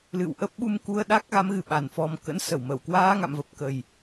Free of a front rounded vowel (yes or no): yes